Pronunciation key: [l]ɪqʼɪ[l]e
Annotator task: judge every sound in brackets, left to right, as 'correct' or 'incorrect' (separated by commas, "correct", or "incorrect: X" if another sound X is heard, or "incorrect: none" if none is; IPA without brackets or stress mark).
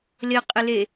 correct, correct